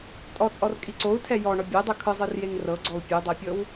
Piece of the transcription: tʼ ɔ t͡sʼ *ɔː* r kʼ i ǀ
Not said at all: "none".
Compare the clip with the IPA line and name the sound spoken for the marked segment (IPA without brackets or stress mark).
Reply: ɔ